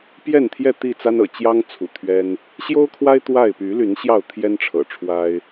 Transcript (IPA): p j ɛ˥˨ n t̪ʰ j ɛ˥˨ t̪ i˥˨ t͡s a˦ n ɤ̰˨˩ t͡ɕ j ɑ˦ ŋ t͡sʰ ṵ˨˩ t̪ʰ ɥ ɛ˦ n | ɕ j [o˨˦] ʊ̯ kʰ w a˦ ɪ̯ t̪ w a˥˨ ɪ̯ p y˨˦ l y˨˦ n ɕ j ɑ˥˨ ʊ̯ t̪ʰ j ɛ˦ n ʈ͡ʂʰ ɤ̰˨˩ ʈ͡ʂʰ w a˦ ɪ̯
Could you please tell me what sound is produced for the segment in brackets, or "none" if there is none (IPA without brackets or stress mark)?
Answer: o˦